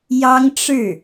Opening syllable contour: high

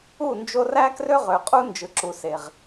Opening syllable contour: falling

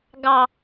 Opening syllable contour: low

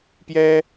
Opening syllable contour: high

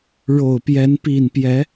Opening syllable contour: low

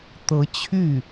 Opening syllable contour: rising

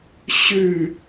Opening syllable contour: falling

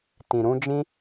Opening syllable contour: low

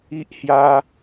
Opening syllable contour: high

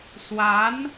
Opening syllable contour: rising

